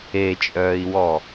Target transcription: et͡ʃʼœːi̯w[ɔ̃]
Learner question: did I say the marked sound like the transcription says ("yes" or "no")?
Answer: no